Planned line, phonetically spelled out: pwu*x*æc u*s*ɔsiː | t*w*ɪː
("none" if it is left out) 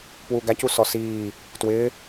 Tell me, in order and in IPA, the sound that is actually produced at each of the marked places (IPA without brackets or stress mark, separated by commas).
ɡ, s, w